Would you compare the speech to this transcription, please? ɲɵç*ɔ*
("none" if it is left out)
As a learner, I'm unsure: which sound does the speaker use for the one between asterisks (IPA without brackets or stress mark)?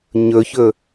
ɵ